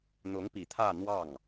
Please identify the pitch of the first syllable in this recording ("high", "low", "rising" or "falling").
rising